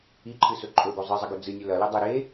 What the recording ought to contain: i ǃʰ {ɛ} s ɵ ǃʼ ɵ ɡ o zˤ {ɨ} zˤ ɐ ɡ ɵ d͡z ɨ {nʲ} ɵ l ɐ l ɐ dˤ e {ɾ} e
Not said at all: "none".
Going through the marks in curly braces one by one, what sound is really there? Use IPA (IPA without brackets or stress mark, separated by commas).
ɨ, ɨ, nʲ, ɾ